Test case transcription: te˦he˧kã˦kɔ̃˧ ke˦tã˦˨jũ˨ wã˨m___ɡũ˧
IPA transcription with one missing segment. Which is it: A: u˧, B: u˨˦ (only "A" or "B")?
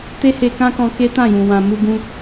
A